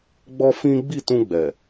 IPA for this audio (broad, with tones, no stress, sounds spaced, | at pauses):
ɡ͡b ɔ˦ f ĩ˦ ɡ͡b i˦˨ t ũ˧ ɡ͡b ɛ˨